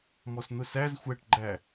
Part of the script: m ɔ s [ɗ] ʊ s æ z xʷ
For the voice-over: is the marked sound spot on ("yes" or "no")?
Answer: no